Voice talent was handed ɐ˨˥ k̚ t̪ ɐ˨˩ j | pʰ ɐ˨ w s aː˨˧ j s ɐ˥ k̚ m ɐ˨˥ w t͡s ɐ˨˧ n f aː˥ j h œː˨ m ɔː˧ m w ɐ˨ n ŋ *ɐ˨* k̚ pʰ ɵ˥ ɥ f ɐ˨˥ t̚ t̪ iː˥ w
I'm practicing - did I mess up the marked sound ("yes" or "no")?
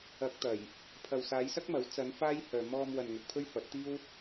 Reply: no